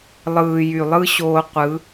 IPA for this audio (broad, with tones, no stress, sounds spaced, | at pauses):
lˠ ɯː˨ j y˨ lˠ ɯ˦ ɕ oː˧ qʷ ɯ˨˦